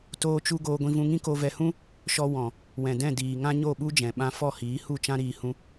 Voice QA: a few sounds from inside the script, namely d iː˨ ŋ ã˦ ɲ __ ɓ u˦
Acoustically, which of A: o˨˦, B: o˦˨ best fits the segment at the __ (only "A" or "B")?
B